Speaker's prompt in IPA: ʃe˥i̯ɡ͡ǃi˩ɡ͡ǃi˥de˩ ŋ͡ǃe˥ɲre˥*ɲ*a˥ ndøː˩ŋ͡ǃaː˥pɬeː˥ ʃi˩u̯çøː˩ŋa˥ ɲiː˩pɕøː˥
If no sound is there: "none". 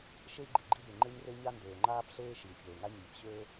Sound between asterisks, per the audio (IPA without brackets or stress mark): ɲ